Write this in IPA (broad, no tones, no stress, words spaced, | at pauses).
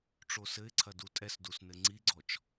ʈ͡ʂosɘɪ̯ǀʰɐ dutʼɛsdus nɘŋ͡ǀiɡ͡ǀɔt͡ʃ